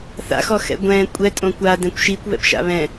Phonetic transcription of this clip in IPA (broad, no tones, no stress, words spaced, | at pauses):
θa̰xɔxɛ̰ ɡʷɛ̃ kʷʼɛtʼõ kʷadɛ̃kʷ ʃikʷβɛ̰pʃa̰ βɛ̃